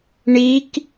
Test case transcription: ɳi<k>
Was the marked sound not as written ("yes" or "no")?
no